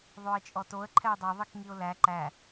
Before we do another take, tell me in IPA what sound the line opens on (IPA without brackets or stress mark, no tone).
ðˤ